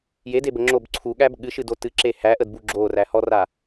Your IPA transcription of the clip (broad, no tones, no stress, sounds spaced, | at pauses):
j e d e b ə ŋ͡ǁ o b ǀʰ u ɠ æ b ɠ ɨ ʃ ɨ d o t ɨ ǁ e h æ ʔ ə d b u ɡ͡ǁ o r æ h ɔ r a